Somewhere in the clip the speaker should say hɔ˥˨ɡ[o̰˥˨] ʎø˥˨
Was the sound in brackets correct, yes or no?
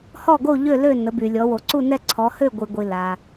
no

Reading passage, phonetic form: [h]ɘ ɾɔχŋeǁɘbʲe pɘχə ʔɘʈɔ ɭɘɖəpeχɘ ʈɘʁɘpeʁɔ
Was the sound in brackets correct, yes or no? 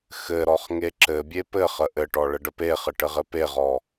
no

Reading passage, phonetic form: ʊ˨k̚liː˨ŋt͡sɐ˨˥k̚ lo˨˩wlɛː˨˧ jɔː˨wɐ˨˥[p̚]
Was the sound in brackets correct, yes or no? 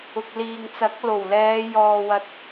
no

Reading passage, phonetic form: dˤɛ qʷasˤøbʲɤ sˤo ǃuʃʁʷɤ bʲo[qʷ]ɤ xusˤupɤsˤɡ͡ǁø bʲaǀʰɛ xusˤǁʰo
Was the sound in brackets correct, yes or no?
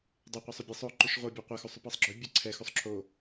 yes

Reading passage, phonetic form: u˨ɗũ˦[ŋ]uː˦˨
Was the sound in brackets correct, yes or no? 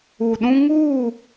yes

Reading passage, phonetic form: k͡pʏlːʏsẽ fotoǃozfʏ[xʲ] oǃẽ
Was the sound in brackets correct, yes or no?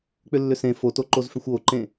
no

